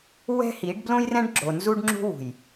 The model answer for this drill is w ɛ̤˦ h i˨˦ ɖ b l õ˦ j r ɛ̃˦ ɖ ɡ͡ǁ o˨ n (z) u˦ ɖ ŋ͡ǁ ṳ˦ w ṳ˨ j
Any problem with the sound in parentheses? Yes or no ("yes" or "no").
no